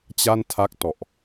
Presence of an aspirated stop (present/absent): present